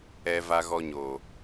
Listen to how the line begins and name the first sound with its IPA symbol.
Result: ɛ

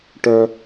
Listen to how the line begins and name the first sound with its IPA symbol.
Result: ʈ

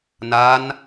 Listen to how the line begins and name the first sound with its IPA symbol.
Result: n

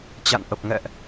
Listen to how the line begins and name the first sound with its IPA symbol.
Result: t͡ɕ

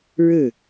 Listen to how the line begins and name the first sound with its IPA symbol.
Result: ɻ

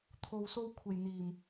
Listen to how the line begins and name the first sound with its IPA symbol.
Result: t̪ʰ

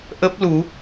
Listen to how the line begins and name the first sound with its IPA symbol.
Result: ʔ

